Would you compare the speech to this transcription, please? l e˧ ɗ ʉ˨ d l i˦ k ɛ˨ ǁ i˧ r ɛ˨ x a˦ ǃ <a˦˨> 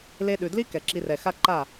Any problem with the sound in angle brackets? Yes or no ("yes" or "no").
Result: no